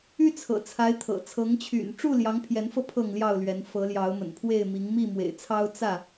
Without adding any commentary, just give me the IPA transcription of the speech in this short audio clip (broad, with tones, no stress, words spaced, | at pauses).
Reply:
y˦t͡sʰɤ̰˨˩t͡sʰa˨˦ɪ̯t̪ʰɤ̰˨˩ t͡sʰɤ˨˦ŋt͡ɕʰy̰˨˩n ʈ͡ʂu˥˨ljɑ˨˦ŋpʰjɛ˨˦nfɤ˧ pʰɤ˥˨ŋljɑ˥˨ʊ̯lɥɛ˨˦n fɤ˨˦ljɑ˨˦ʊ̯mə̰˨˩npʰwe˥˨ɪ̯ mi˨˦ŋmi˥˨mwḛ˨˩ɪ̯t͡sʰɑ˦ʊ̯ t͡sä˥˨